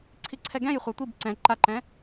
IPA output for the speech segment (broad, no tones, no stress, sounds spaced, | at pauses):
ǀʰ i ǀʰ ɛ ɡ ɛ̃ j χʷ a tʷ i b ǀ ɛ̃ ǃ a ǃ ɛ̃